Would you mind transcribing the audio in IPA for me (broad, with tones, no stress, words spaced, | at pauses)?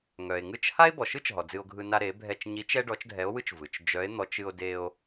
ŋœ˩e̯ŋɯ˥t͡ʃ ha˥e̯bɔ˩ʃɯ˥t͡ʃɦɔ˩ d͡zɨ˧o̯ɡʱɯ˧ na˧ɾe˩˧bʱɛ˧t͡ʃ ɲi˧˥t͡ʃɛ˥ ɖɔ˧˥t͡ʃdʱɛ˧˥o̯wɯ˥t͡ʃ vɯ˩t͡ʃ d͡ʒœ˧˥e̯n̪ɔ˧˥t͡ʃ ɨ˧o̯de˧o̯